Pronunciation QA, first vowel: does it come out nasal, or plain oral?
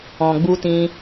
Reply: nasal